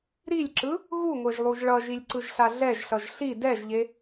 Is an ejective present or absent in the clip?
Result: absent